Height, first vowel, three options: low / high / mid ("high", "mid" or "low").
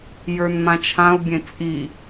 mid